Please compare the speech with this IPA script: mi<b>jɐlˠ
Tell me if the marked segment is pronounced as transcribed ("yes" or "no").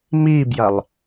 yes